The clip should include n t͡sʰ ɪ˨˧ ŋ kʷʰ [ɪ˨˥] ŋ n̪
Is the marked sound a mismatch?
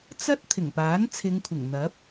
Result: yes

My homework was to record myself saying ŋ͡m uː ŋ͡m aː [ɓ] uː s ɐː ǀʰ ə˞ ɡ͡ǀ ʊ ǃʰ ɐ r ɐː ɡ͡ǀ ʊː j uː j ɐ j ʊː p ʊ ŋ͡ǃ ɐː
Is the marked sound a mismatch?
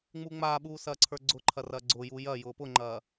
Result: no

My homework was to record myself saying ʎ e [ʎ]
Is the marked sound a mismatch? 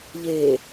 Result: yes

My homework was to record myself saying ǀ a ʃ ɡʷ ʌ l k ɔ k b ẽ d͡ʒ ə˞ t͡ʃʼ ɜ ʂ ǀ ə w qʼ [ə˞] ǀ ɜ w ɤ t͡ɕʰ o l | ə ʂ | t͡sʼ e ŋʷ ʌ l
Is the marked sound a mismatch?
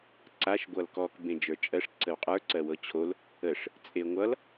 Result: no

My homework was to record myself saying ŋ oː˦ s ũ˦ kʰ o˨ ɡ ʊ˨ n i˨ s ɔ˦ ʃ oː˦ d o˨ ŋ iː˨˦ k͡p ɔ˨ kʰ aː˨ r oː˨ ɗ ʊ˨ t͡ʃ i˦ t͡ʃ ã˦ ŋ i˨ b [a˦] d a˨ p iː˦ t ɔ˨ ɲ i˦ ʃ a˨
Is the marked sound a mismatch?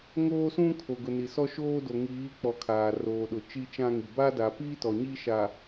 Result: no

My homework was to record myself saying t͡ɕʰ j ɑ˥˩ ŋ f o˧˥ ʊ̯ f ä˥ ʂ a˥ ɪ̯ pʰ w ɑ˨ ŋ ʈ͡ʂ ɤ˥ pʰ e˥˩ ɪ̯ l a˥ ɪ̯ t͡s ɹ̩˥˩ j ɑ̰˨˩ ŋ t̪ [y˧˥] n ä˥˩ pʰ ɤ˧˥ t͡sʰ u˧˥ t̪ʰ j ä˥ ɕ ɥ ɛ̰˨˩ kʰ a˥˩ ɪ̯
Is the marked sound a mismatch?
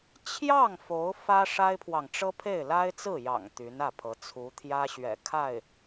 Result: no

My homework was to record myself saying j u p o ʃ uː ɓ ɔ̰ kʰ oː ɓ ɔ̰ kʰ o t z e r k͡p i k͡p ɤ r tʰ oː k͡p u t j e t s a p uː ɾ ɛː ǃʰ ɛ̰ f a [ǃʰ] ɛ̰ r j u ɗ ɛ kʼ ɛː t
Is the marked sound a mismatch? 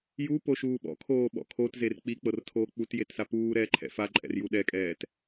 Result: yes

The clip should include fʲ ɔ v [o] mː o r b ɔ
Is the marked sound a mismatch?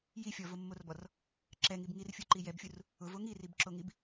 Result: no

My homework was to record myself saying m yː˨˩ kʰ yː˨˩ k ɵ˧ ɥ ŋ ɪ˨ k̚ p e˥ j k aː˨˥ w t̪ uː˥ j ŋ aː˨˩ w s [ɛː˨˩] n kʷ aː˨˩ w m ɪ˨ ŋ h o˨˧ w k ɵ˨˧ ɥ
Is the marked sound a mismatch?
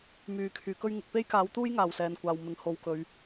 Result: no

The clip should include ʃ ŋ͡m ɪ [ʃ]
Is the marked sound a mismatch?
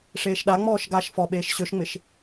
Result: no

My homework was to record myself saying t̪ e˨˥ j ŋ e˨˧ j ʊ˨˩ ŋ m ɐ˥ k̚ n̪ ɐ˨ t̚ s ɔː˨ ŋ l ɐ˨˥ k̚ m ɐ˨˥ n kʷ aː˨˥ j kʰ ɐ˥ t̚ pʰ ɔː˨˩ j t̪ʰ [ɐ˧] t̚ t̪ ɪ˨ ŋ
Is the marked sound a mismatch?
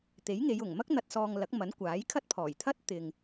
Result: yes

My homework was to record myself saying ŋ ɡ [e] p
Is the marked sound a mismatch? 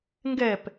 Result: yes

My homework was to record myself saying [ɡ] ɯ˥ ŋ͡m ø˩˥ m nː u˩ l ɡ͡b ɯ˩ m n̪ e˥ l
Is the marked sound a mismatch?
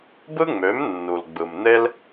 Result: yes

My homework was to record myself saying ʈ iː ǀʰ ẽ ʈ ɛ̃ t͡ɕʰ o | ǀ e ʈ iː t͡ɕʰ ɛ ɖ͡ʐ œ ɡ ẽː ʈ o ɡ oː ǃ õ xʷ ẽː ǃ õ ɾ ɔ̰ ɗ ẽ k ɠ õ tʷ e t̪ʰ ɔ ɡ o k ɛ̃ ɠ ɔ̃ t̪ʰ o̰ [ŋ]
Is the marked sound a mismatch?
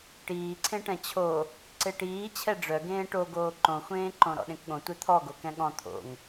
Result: no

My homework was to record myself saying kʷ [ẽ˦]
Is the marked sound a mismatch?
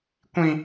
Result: yes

